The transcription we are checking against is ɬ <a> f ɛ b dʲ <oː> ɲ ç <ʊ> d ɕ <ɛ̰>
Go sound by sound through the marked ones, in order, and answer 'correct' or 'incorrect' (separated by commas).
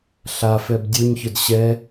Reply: correct, incorrect, correct, incorrect